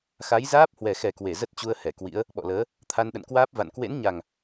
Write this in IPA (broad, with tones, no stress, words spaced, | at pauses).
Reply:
xa˨˦jzaː˦˥p̚ hwɛ˨˩xɛ˨˩kwe˧˩ zə˦˥t̚t͡ɕu˧ə̯hɛ˧˩ kwḭ˧˥ə̯ | ɓɔ̰˧˨ləː˨˦ | t̪ʰa˧nɗə̰˧˨nkwaː˦˥p̚ va̰˧˨n kwḛ˧˥nɲa˨˩ŋ